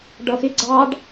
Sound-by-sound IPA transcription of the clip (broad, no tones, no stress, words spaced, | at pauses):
ɖʌxɪ ɡ͡ǀɑɖ